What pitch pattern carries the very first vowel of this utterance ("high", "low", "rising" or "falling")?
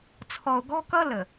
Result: low